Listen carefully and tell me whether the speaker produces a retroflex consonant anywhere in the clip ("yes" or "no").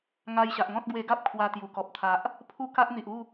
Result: no